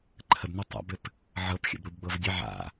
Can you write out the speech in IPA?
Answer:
ǃʰəbnɘ tˤa̰bɘp | ʕɤpxʲə̰bɾubɡ͡bɤv dʲə ʕa̰

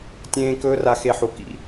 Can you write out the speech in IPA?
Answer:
tʲẽː˦ kɵː˦ra˧xe˧ħu˨ kḭ˧

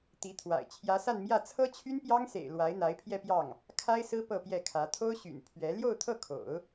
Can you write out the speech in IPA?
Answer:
t̪i˧˥t̪ʰwa̰˨˩ɪ̯ t͡ɕʰjä˧˥sa˥˧nmjä˥˩ t͡sʰɤ˥t͡ɕʰy˥npjɑ˥ŋsḛ˨˩ɪ̯ lwa˧˥ɪ̯ n̪a˧˥ɪ̯pʰjɛ˥˧pjɑ˥˩ŋ | kʰa˥ɪ̯sɹ̩˥ pɤ˥˧pjɛ˥˩kʰä˧˥ t̪ʰo˥ʊ̯ɕy̰˨˩n pʰɥɛ˧˥ ljo˥˧ʊ̯t̪ʰɤ˥˩kʰo̰˨˩˦ʊ̯

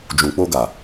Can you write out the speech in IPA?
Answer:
d͡ʒũ˨k͡po˧ɡa˨

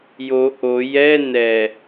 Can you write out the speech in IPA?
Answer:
jo ʔo jɛ nɛ

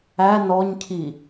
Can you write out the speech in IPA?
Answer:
æ nɔɲcʰi

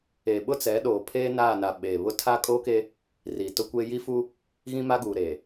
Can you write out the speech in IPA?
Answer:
e˨ɓʊ˦t͡sɛ˨˦ ɗoː˨pʰeː˦naː˦˨na˨ ɓeː˨βʊ˦ tʰa˦kʼoː˦ke˦ | ri˨tʊ˦kʷeː˦ ji˦fu˦ | ɣĩ˦ma˦ɡuː˨ ɾe˨

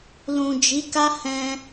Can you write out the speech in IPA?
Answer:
lũ˨d͡ʒi˨˦ka˦ hɛ̃˧

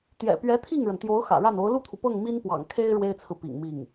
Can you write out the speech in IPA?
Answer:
t̪jɛ̰˨˩pɥɛ˧˥ t̪ʰi˥˩ŋɻə˩nt̪jo˧˥ʊ̯ xä̰˨˩ɻa˥˩no˧˥ʊ̯ lu˥˩t̪ʰu˩pɤ˥˩ŋ mi˥npwɑ̰˨˩ŋ kʰe˥ɪ̯ ɻwe˥ɪ̯t͡sʰɹ̩˨ pḭ˨˩ŋmi˥˩ŋ

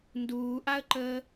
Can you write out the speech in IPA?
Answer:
nduːʔaə̯ǃəː

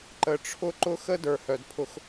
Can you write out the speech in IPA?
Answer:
ǃə˨ʈ͡ʂʰʊ˦ ǃʊ˦xə˦ də˞˨hœ˨dpʰʊ˧x

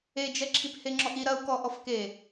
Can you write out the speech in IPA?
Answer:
ed͡ʒɛ ǁʰipheŋ͡ǁɔʔi ɾɐu̯kɔ ʔɔfke

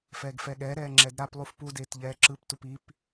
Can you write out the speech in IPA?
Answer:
fɛːɡfɛɠɛɾɛː ŋ͡ǁɛdɾaplˠuf pudeːt ʎɛːǁɯptup ip

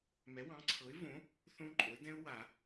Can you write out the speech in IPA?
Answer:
mɛ˩˥wɑ̃˩˥ǀʰɤ˩˥ɪ̯võ˩˥ | θõ˦˥ǃʼo˩˥ɪ̯dɛ̃˦˥ʊ̯ wa˨˩˦

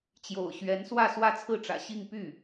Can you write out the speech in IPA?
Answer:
t͡ɕjo̰˨˩ʊ̯ɕɥɛ˧˥nswä˥˧ swä˥˧t͡sʰɹ̩˥˩ʈ͡ʂä̰˨˩ ɕi˥˧ŋpy˥˩

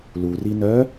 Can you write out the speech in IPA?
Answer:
luri nœ

